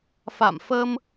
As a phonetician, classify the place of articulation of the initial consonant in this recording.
labial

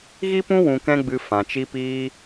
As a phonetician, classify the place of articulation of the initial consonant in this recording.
velar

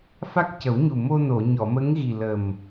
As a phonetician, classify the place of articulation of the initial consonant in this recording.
labial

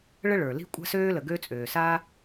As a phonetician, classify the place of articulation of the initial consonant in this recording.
retroflex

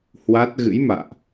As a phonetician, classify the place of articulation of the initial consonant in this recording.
glottal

